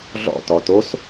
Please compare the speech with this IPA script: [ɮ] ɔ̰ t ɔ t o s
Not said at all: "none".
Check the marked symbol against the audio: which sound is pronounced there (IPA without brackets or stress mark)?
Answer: ɮ